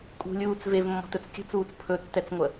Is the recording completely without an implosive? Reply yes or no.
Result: yes